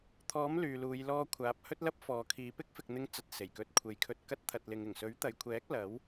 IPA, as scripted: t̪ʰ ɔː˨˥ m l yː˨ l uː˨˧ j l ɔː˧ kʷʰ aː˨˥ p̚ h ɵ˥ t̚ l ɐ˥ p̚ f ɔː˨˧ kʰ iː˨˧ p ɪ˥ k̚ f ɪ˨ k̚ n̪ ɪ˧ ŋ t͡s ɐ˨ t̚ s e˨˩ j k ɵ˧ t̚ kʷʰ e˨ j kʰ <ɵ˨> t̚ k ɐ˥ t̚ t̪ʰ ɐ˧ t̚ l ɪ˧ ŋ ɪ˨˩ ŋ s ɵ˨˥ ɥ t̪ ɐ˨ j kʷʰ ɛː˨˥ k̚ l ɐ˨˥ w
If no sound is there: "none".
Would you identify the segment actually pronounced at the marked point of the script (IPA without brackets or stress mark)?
ɵ˧